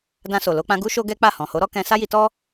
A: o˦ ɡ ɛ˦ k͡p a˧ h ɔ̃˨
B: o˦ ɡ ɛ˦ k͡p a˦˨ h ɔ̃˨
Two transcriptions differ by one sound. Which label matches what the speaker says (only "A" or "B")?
B